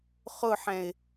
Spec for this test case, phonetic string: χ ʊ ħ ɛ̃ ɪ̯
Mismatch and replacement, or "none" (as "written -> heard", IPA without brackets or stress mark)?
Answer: none